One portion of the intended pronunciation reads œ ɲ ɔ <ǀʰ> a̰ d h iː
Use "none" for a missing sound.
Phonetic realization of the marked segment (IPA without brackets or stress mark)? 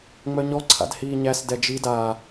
ǀʰ